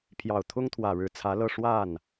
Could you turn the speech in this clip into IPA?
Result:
pʰ j ɑ˨˩ ʊ̯ t̪ʰ ʊ˥ ŋ t̪ʰ w ä˨˩ ɻ ɻ̩˧˥ t͡sʰ ä˧˥ l ɤ˥˧ ʂ w a˥˩ n

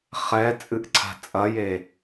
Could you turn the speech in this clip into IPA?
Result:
χ ɛ t͡sʼ ɨ ʔ ǀʰ a̤ t͡sʼ ɐ j e

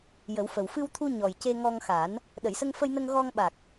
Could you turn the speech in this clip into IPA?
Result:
j ə˨˩˦ w f ə˨˩ w f ɨ˧ w t̪ʰ u˧ ɲ ɔ˨˩ j c e˧ ŋ ɔ˧ ŋ x a˨˩˦ n | ɗ ə˨˩˨ j s ə˧ ŋ f ə˧ j n ə˧ ŋ ɣ ɔ˧ ŋ ɓ a˨˩ k̚

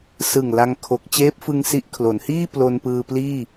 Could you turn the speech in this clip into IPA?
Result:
s ɯ˨˩ ŋ l a˧ ŋ kʰ o˨˩ k̚ t͡ɕ eː˦˥ p̚ f ɯ˧ ŋ s i˦˥ ʔ kʰ l o˩˦ n h iː˥˩ p l o˧ n p ɯː˧ p l iː˥˩

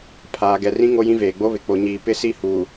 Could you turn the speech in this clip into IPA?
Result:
pʰ aː˨ ɡ ɛ˨ r ĩ˦ ŋ o˦ j ĩ˦ v eː˨ ɡ͡b o˦ β ɪ˨ k͡p o˨ ɲ iː˨ p ɪ˦ s i˦˨ h uː˨

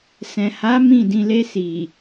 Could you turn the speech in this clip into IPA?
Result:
s ɛ̃˨ h a˨˦ m ĩ˦˨ d ĩ˧ l e˧ s i˨

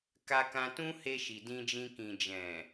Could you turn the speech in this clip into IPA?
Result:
k a˧ k ã˧ t ũ˦ h e˧ ʃ i˨ d ĩ˧ d͡ʒ ĩ˧ k ĩ˨ d͡ʒ ɛ̃˨

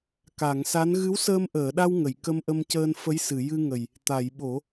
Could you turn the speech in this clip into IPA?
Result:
k a˨˩˨ ŋ s a˧˥ n ɣ ɨ˧˥ w s əː˧ m ʔ əː˨˩˨ ɗ a˧ w ŋ ə˨˩˨ j k ə˧ m ʔ ə˧ m c əː˧ n f ə˧˥ j s ɨ˨˩˨ j ɨ˧ ŋ ə˨˩ j | t̪ a˨˩˨ j ɓ o˨˩˦

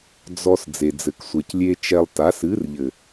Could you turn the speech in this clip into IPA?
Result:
d͡z ɔ˧ s d͡z e˨ d͡z ɘ˨ k sʷ ɛ˨ c lʲ e˦ t͡ʃ ɛ˧ lˠ t a˨˦ s ɨ˨˦ r ʎ ɘ˨

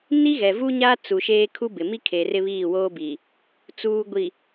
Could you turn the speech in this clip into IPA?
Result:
n i˦ ɣ ɛ˨ v u˦ ɲ a˦ t͡s u˨ ʃ eː˦ kʰ u˦ b ɪ˨ m i˦ kʰ e˨ r ɪ˦ β iː˦˨ w oː˦ b i˨ | t͡s uː˨ ɡʷ i˨

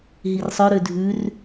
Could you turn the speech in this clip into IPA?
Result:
ɦ i r sˤ œ ɾ ø dʱ ʉ r

